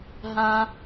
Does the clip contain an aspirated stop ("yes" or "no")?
no